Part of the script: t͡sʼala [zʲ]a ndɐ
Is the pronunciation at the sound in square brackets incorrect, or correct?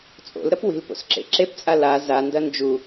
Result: incorrect